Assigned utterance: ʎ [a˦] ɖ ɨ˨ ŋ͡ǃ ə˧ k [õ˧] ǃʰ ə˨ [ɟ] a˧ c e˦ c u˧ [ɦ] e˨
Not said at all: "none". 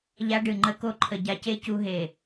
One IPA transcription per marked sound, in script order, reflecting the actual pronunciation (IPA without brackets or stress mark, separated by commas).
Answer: a˧, o˧, ɟ, ɦ